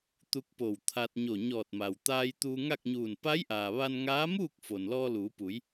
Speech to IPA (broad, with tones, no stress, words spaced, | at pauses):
t̪u˧k̚po˧˩wt̪ʰa˧t̚ ɲo˧˩ɲɔː˧˩t̚ma˩w t̪aː˧j t̪uː˧ŋa˥˨k̚ɲuː˧˩n pa˧˥jʔaː˩ ʋa˧nŋaː˧˥muː˥˨k̚ fo˩nlɔː˧luː˩˧pu˩˧j